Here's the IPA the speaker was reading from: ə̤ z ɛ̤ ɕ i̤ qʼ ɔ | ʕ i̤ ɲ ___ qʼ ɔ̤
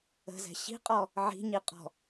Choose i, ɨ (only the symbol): i